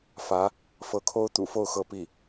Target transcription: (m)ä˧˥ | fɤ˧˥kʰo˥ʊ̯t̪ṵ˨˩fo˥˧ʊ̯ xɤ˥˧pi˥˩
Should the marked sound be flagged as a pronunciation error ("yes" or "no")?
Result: yes